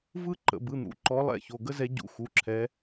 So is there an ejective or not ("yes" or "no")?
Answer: no